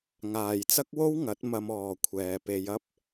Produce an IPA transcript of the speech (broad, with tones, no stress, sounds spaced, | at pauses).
ŋ aː˨ j t͡s ɐ˥ k̚ w o˥ w ŋ ɐ˨˥ t̚ m ɐ˧ m ɔː˨ kʷʰ ɛː˨ p e˧ j ɐ˥ p̚